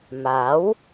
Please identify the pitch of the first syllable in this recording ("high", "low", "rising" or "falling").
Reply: rising